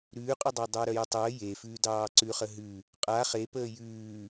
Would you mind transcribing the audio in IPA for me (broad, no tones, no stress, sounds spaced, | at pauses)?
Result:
ɾ ʉː qʼ ʉ dˤ ɑ dˤ əː ɾ œ j ə tˤ əː j e f ʉː d ɑː ǀ ʉ χ ə ɦ ʉ | qʼ a χ e p əː j ʉː